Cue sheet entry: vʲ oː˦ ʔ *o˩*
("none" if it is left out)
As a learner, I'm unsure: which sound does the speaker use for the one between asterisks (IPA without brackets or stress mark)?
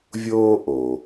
o˩